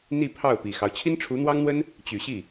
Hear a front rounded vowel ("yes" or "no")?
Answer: yes